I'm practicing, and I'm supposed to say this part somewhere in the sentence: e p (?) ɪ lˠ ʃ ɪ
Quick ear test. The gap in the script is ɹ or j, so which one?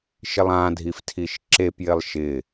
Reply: j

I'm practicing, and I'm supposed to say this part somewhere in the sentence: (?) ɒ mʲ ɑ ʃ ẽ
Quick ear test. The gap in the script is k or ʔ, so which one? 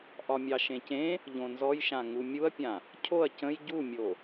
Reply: ʔ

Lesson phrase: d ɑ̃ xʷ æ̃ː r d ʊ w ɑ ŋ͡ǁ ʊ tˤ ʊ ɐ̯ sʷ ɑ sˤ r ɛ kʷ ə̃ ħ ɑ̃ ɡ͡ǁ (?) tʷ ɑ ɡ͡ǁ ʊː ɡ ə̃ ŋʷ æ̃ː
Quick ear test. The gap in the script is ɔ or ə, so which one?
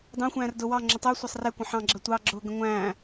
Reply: ə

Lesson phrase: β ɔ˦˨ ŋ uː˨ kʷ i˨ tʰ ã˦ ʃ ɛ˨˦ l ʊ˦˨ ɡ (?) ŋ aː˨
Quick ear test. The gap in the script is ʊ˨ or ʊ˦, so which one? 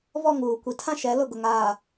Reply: ʊ˨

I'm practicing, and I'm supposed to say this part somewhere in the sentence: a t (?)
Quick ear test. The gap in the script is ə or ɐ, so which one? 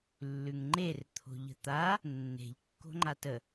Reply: ə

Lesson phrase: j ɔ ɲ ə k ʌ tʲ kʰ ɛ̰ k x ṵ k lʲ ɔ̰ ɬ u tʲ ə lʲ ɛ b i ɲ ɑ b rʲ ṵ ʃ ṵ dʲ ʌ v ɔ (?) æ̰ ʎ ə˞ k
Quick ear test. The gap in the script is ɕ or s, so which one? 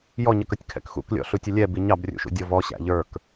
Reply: ɕ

